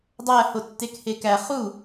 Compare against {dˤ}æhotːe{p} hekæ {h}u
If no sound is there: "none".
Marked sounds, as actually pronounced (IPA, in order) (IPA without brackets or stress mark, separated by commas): dˤ, k, χ